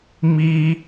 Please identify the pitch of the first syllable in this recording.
high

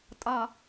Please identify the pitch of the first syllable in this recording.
low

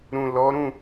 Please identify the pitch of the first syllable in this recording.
low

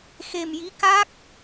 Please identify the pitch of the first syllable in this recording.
low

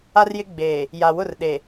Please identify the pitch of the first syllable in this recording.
high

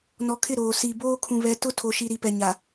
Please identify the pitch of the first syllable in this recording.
low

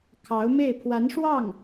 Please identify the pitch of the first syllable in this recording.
rising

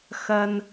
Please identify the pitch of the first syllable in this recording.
high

